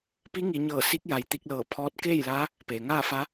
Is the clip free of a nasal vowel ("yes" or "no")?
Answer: yes